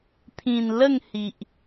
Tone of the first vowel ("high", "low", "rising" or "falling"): low